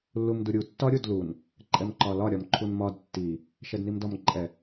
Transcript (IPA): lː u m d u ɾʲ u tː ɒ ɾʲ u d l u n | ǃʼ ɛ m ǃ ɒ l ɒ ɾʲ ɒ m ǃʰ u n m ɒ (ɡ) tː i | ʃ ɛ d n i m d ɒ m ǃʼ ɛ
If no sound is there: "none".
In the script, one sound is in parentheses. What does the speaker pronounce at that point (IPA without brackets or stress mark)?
d